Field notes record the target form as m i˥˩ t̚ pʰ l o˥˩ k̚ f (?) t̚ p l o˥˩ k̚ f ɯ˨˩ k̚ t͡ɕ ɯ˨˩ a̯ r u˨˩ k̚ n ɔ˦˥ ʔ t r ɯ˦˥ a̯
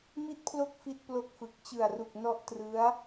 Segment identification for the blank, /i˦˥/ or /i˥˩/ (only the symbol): i˥˩